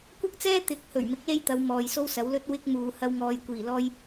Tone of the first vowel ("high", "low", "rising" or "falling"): high